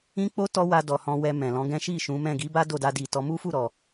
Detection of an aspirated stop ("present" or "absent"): absent